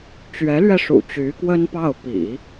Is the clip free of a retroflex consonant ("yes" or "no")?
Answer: no